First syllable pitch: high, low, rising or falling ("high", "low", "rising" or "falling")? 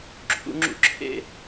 low